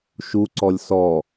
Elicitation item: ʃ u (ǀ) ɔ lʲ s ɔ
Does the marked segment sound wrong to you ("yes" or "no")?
no